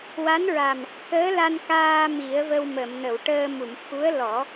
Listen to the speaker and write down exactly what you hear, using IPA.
wa˧˥nɹa˨˩m | kəː˧˥la˧nkaː˧ mi˨˩˦ə̯və˧wmə˨˩˨mnə˨˩˨w ʈəː˧mu˨˩˨m xu˧˥ə̯ lɔ˨˩˦

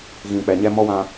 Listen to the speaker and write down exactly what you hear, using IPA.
ɣĩ˨k͡pɛ˨ ɲɛ˦mɔ˦wã˦

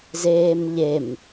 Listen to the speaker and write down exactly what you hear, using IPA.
zeːmʎem

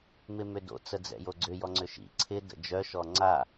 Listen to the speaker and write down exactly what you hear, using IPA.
mɪmʏdo̰ t͡səd͡zɛ̰joɡ͡ǀʏ jɔŋ͡ǀʏʃḭ ǀʰɪ də̰d͡ʒœ ʃɔŋ͡ǀa

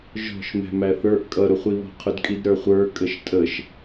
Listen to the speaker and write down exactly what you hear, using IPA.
ʒɔ̤ʃmɛ̤ mæθə˞ʔ kʼʌɾʊχʷiβɔ̤ qʰʊdkʼidɾə˞χʷə˞ kʼəʃtʼəʃ

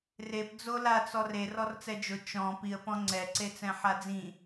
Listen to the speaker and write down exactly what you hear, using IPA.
rep d͡zolat͡sɔr e rɔrt͡sɛd͡ʒʊ t͡ʃɔ̃ piə̯pɔ̃ ŋ͡ǀɛǀet͡sɛ̃ ħad͡zĩ

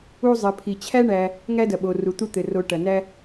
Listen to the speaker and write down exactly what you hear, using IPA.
u˦zˤɘ˩ pʰi˩t͡ɕʰæ˥ɳæ˨ | ŋæ˥dɐ˩ɓo˩ ru˩t̪u˦ t̪ɘ˩ro˨ ʈɐ˩næ˥

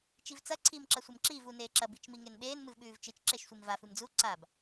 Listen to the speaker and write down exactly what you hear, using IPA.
t͡ʃivt͡sɐ ǀʰiːmǁɐsʷemǁiːv uneːǁɐ bit͡ʃmiŋenɓeːn mɨvɓʉːvt͡ʃɨt͡ʃ ǁeʃsʷimva fɨmd͡zu ǀab

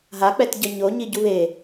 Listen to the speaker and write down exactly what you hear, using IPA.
ɦak͡pɛtɟʌ ɲoɲiɟu βe

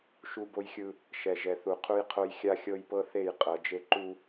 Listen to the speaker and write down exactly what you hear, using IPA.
ʃu˦bo˦jxʲɯ˦ | ʃɛ˨ʒɛ˨θu˨ qʰu˦jqʰo˦j xʲa˦xʲɤ˦jpɤ˦θe˦˨j qʼɤ˨d͡ʒe˦ ǃu˦

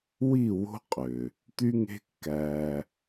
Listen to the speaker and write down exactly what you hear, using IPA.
wi˦˨wo̤˦ qʼø˨ | t̪y˦ŋe̤˦ kːæ˦

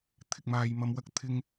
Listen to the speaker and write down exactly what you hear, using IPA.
t̪ʰɪ˨k̚maː˨j mɐ˨mwɐ˧k̚ t̪ʰɪ˥ŋ

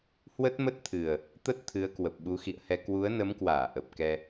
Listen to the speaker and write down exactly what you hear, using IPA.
hwə˦˥t̚mə˦˥t̚t̪ʰɨ˨˩ə̯ | t̪ə˦˥t̚ t̪ʰɨ˨˦ə̯kwə˨˩p̚ ɓu˨˦xḭ˧˨ə̯hɛ˧ kwu˨˦ə̯nə˨˦mkwaː˧˩ ʔə˨˩p̚kɛ˧

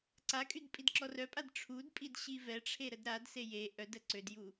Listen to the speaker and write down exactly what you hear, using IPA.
ǀakʼyd pʼidǁɔrœpʼad ʈ͡ʂʰudpʼid ɕivɛʈ͡ʂʰe ɾədɾadse je ʔœdə ǀødju

